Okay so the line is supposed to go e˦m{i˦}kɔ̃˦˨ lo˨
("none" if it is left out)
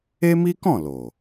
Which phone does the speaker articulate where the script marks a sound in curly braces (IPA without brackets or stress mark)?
i˦